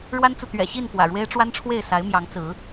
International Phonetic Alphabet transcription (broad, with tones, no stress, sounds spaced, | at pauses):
ɻ w a˦ n t͡s u˨ t̪ ɥ ɛ̰˨˩ ɕ i˥˨ n p w ä̰˨˩ ɻ w e˦ ɪ̯ ʈ͡ʂ w a˦ n ʈ͡ʂʰ w e˥˨ ɪ̯ s a˨˦ ɪ̯ m j ɑ˨˦ ŋ t͡s ɹ̩˨˦